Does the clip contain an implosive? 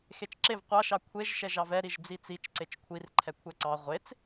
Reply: no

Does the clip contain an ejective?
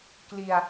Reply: no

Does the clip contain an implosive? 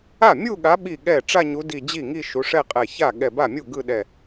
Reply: yes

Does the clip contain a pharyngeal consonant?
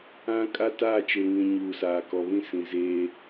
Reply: no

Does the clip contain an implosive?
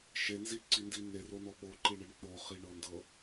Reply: yes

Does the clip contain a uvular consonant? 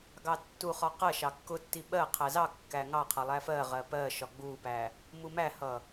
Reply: yes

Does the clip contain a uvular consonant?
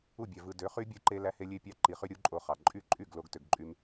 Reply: yes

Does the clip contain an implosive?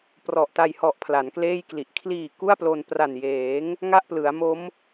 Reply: no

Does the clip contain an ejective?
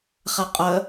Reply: yes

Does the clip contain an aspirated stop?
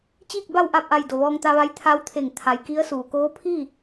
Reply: yes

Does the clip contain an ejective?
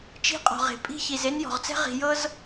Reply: yes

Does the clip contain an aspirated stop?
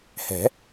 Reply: no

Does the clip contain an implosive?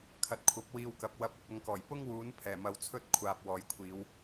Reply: no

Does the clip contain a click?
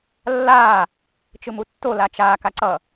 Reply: yes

